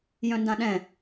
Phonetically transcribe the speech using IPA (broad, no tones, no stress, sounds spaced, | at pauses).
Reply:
j œ̃ n d ã ɗ ɛ̃